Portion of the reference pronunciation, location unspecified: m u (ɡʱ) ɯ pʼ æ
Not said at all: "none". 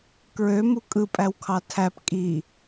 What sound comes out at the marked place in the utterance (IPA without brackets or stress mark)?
kʼ